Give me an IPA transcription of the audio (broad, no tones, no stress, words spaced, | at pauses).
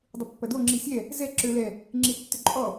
dˤʏpːɐdo ŋ͡ǁisʲɛ | zɛ ǁø lɛ | ŋ͡ǁitːʏǃʼɔ